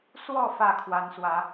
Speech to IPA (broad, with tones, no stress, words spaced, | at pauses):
swɔ˥˨ fä˥˨kʰwa˨˦nswä˨˦